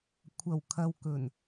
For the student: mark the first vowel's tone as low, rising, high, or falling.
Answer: low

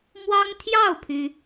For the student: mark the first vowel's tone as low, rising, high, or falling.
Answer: high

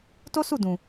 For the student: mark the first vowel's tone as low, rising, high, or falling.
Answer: high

